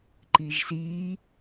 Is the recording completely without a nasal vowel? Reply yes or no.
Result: yes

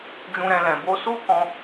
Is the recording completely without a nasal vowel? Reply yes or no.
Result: no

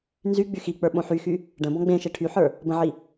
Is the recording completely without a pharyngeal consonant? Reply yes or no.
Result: no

